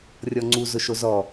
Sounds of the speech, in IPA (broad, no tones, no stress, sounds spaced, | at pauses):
rʲ ɔ ŋ͡ǀ u z ʊ ʃ o z ɔ